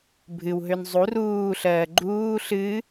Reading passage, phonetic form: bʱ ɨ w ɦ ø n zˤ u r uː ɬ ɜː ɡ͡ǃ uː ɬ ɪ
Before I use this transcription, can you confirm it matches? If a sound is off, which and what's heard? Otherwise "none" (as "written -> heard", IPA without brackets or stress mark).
ɪ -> ɨ